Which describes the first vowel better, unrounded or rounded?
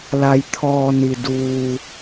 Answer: unrounded